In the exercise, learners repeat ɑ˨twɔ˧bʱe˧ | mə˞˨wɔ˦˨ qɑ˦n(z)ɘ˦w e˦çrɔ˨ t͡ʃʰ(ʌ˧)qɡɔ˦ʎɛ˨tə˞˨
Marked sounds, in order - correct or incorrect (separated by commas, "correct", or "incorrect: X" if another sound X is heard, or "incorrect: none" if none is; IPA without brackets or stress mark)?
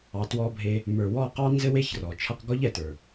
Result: correct, correct